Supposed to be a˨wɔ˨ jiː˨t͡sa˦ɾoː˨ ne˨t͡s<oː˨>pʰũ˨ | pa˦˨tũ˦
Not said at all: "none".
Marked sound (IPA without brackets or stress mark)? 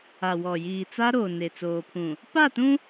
oː˨